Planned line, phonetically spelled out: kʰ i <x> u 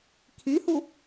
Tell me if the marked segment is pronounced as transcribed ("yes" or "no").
no